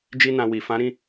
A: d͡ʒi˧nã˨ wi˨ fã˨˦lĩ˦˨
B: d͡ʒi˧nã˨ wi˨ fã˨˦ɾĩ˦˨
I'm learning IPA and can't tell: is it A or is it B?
B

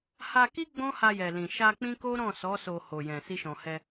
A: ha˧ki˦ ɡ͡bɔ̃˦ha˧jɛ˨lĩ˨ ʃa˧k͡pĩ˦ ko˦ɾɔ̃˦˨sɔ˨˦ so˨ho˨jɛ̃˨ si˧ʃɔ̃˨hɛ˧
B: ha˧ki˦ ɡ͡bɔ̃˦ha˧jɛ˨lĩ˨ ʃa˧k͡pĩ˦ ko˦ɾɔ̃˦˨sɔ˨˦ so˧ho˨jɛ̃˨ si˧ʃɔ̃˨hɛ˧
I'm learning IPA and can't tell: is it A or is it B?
B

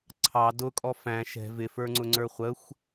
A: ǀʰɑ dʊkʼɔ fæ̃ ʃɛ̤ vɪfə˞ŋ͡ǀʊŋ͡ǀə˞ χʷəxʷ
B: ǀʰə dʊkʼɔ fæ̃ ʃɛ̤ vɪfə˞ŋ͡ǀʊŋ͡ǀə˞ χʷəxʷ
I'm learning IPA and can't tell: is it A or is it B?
A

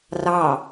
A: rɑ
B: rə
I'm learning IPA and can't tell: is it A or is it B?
A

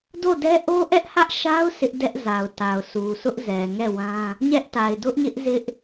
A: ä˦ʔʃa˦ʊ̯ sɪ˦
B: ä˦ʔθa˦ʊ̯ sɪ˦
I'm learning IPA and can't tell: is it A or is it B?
A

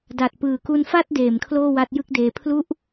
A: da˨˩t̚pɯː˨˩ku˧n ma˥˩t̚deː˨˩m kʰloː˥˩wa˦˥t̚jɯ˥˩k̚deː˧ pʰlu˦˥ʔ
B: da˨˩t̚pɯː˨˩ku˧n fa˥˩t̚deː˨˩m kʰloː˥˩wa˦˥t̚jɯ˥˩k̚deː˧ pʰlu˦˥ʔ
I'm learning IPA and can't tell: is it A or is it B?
B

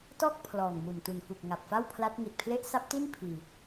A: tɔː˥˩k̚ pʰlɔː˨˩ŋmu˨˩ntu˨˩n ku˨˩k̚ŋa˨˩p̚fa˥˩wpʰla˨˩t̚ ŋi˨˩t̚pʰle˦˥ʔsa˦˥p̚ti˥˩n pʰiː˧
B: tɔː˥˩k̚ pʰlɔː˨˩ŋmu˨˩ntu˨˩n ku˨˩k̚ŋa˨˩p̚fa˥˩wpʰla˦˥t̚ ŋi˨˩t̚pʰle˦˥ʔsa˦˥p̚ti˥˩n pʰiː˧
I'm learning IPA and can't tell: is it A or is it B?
B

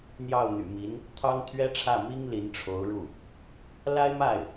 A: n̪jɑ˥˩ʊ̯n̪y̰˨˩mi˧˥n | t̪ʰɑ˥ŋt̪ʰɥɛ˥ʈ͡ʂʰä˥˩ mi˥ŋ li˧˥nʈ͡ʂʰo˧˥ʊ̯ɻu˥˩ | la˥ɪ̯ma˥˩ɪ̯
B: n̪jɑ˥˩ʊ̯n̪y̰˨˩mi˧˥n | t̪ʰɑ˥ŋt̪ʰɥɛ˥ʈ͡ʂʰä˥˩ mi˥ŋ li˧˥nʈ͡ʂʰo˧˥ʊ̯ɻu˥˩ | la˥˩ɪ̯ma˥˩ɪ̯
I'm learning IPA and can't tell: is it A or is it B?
A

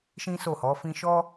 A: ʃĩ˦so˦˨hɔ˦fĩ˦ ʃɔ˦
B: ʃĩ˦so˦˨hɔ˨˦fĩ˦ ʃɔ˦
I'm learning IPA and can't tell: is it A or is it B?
B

